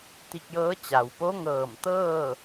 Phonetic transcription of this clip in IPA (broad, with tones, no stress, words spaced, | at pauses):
t̪i˧k̚jɤː˧˥ t͡ɕa˩wpo˧˥ŋɤː˧˩mt̪ɤː˥˨